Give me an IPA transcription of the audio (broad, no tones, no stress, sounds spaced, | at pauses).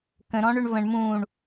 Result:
k ə̃ ɾ ɔ̃ ɳ ʏ ɳ v ə̃ ɳ m ũ ɳ